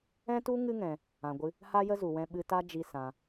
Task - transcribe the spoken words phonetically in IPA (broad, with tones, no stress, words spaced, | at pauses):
ɛ̃˦tu˦ŋɨ˦ ŋɛ̃˧ | ã˧ɡʷɨ˦ | ha˦jə˦zu˨ wɛ̃˧ɓɨ˧ta˦d͡ʒi˧ sã˧